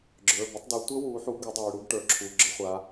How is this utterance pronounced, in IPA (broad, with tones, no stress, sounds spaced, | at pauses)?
ɡ͡ǁ ə˞˩˧˩ b ə˦ tˤ d u˩˧ tʷ ə˦ w u˩˧ ħ u˩˧ ɡ ə˩˧ dˤ a˩˧ y̯ ɽ u˦ ɡ ʈ ə˞˩˧˩ ǁʰ u˩˧˩ ɡ͡ǁ ə˥˩ χʷ a˩˧